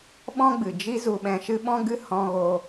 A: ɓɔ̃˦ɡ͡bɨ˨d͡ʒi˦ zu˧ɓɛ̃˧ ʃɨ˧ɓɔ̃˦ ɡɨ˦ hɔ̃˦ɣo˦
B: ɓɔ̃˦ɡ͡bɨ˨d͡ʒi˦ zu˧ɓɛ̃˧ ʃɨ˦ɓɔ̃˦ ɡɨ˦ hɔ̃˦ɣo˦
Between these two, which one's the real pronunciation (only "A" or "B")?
B